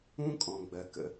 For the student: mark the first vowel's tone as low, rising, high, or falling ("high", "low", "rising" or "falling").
high